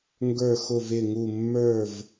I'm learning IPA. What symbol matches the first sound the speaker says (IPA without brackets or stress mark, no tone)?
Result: ŋ